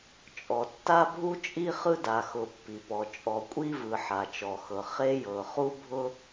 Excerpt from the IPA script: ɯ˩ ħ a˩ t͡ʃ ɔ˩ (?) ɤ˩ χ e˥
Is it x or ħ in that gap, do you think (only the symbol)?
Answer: x